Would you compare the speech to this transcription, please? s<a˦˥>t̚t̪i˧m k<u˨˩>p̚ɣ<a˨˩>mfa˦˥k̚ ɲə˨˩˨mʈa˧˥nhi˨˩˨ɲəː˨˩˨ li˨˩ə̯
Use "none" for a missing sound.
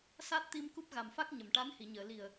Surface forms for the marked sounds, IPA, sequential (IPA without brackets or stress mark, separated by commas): a˦˥, u˦˥, a˨˩